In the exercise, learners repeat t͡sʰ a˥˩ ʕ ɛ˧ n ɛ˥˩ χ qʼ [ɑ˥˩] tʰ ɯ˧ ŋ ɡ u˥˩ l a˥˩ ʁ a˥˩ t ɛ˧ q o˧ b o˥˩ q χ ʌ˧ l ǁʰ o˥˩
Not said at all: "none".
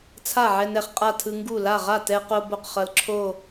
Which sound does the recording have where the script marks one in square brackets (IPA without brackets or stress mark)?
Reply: a˥˩